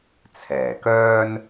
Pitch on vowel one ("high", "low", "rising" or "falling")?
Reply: low